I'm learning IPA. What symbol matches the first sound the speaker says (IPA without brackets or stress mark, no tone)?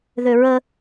ð